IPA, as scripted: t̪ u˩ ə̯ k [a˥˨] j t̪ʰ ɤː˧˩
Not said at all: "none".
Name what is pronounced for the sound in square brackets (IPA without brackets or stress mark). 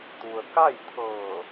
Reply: a˥˨